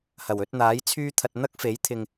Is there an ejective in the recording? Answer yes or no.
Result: no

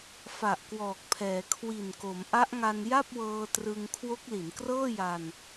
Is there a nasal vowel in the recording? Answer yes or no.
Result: no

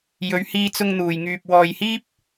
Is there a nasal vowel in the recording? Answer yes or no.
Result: no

